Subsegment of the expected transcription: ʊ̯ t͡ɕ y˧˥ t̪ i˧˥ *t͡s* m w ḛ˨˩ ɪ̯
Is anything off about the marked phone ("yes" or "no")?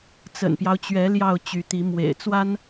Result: yes